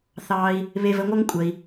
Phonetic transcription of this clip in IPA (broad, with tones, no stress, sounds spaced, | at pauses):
θ ɑː˧ i̯ | β e˧ v ə˧ ŋʷ ʌ˥ ŋ kʷʼ əː˧ i̯